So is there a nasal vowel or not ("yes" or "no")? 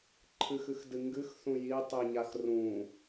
yes